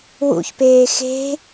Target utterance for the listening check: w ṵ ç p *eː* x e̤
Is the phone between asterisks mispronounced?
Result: no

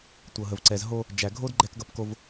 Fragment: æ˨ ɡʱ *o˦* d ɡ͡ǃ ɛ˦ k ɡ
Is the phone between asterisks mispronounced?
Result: no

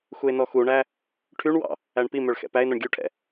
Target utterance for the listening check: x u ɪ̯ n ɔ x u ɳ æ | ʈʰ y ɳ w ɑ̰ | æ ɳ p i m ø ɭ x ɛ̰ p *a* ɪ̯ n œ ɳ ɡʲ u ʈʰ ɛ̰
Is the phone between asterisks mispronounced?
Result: yes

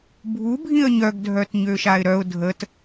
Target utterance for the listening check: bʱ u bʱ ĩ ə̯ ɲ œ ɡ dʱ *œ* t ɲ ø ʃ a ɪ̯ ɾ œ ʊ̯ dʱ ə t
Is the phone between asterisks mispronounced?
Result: no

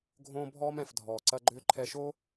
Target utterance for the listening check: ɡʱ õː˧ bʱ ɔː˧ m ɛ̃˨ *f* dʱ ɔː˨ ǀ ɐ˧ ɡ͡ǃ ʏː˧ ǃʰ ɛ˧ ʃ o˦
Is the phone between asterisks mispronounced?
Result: no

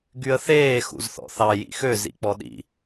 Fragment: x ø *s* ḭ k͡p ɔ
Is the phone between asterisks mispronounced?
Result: yes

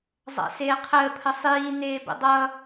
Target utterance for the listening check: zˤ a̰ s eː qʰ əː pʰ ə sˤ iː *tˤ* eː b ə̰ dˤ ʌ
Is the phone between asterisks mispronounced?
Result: yes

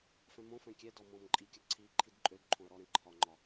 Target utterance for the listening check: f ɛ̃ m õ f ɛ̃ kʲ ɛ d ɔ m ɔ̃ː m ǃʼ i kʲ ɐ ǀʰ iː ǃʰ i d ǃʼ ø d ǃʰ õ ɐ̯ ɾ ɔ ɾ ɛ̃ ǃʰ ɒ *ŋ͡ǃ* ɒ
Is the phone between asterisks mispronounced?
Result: no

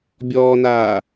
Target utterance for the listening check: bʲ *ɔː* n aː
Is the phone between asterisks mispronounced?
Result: no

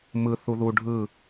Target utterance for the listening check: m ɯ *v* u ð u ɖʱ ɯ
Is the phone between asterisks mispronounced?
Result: yes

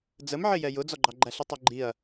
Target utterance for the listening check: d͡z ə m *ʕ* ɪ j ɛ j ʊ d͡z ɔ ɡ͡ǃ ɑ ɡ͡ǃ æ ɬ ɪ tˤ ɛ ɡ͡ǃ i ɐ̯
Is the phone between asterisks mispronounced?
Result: no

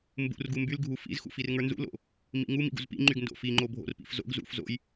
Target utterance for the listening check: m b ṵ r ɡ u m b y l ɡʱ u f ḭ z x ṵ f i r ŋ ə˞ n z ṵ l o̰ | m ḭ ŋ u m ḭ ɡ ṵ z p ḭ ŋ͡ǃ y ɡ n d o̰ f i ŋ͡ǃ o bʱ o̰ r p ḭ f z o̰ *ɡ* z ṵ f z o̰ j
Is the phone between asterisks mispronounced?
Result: no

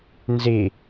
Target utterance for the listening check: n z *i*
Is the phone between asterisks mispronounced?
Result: no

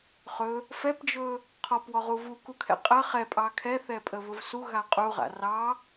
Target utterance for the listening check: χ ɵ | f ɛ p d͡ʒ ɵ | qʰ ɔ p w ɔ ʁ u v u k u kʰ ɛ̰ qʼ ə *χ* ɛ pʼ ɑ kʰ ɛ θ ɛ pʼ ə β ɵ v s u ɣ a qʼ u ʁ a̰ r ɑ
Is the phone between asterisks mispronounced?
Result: no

